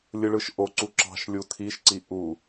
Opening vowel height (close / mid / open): close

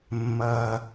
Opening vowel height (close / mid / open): open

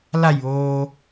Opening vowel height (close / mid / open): open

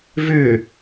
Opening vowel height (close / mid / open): close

